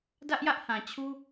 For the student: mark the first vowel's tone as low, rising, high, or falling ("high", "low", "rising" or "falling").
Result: high